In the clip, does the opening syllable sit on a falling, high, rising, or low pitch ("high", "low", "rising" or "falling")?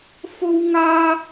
high